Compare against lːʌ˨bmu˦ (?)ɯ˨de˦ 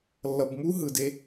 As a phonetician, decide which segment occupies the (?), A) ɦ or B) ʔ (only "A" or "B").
A